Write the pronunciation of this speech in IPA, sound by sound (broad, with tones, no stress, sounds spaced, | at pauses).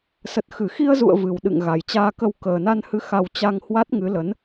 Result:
s ə˨˩ t̚ x ɨ˧˩ x i˧ ə̯ z ṵ˧˨ ə̯ v ɨ˨˩ w ɗ ɨ̰˧˨ ŋ ɣ a˨˩ j t͡ɕ aː˧ k ə˧ w k əː˨˩ n a˧ n h ɨ˨˦ x a˧ w t͡ɕ a˧ ŋ h w a˦˥ t̚ ŋ ɨ˨˦ l ə˨˦ n